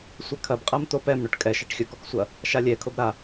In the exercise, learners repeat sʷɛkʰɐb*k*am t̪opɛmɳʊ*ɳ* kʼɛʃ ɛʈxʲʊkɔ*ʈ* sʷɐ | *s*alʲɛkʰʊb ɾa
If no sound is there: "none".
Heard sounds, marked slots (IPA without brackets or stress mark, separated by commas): qʼ, ʈ, k, ʃ